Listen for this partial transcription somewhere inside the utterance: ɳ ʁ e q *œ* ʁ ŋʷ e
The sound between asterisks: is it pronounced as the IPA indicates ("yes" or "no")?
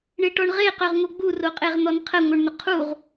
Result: yes